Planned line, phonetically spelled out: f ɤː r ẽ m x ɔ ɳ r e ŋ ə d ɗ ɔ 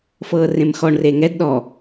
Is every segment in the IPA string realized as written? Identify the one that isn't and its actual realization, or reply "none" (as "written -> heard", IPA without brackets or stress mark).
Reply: ə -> ɛ